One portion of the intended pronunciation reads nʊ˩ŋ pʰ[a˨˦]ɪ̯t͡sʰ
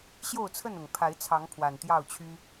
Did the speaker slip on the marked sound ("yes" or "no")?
no